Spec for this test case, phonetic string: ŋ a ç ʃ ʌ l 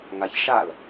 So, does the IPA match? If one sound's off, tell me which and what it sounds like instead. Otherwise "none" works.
ʌ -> a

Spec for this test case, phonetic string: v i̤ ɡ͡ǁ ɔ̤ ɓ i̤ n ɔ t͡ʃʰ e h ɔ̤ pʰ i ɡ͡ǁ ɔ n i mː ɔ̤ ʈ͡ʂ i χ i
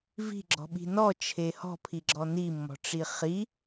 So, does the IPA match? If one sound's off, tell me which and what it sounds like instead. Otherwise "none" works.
none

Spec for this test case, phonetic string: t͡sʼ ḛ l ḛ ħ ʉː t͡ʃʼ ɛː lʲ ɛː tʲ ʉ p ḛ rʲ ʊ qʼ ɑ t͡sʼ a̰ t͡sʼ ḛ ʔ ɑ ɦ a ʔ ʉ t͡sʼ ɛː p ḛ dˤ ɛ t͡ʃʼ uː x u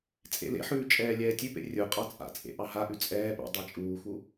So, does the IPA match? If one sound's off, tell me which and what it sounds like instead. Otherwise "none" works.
none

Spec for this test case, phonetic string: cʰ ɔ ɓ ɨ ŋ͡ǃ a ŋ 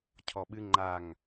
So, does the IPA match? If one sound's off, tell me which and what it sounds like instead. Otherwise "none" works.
none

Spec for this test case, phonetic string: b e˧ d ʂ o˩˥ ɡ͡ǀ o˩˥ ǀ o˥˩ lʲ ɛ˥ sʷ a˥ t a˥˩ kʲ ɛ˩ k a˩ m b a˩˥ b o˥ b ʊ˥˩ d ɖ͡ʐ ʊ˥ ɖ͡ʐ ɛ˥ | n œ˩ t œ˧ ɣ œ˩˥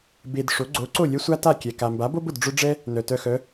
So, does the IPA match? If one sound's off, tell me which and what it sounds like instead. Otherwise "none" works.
ɣ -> x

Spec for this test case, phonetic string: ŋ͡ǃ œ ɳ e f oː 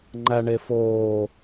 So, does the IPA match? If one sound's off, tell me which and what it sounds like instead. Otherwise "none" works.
œ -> æ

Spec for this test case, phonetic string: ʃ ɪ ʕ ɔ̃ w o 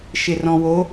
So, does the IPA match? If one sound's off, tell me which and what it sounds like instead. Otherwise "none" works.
ʕ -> r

